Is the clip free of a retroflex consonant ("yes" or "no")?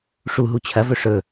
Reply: no